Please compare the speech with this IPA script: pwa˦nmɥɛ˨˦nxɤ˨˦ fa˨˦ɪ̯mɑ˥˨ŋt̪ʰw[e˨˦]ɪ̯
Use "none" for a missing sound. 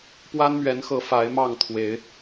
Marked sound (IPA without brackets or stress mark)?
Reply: e˨˦